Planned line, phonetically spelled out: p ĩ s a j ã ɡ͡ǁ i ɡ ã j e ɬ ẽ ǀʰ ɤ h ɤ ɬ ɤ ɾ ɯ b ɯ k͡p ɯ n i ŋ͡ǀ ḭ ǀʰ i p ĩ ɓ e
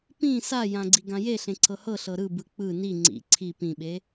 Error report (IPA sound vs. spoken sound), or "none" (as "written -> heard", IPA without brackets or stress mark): ɡ͡ǁ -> ɡ͡ǀ